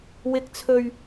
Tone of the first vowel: high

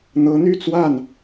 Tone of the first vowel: rising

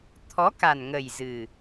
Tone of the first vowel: rising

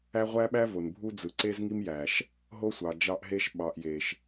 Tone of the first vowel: high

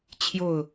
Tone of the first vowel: falling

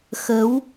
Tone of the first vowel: rising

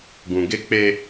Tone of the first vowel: low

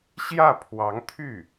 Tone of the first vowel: falling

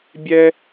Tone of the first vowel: high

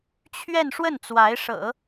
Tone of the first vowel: falling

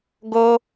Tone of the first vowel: high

